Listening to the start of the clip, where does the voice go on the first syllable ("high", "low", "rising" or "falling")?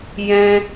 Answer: high